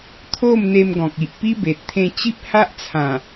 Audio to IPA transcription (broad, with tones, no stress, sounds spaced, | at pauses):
t̪ʰ o˥˧ m n̪ e˧ m ɡ ɔ̃˨ k̚ i˨ ʔ p i˦ b e˨ t̚ t̪ʰ ẽ˧ t͡ɕ i˦ p̚ h a˦ ʔ t͡sʰ ã˨˩